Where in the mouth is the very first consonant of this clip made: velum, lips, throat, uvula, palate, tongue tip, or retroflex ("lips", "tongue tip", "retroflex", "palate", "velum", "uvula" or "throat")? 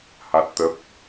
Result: throat